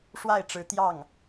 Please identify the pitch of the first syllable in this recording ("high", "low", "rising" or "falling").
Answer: falling